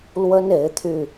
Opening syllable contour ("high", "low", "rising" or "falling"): high